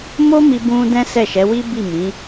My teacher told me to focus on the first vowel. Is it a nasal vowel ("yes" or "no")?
no